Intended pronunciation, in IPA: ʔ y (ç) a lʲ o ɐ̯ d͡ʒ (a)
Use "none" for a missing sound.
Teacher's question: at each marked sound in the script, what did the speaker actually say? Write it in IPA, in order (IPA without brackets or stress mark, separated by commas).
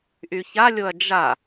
ç, a